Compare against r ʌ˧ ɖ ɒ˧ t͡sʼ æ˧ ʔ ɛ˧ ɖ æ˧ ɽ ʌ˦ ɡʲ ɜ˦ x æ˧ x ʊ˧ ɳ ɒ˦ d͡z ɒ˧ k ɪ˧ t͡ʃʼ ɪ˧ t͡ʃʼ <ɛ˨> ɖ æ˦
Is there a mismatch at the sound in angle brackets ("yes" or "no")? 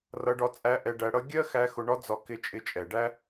no